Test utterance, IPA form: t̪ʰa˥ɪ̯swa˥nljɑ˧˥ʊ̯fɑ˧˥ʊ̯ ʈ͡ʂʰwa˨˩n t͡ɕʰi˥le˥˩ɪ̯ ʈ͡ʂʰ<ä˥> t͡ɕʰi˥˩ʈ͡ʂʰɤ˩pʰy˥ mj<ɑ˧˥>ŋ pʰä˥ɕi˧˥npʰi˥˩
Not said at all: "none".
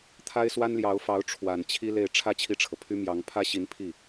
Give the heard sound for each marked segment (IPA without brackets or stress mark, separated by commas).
ä˥, ɑ˧˥